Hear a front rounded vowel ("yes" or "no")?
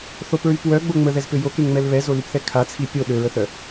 yes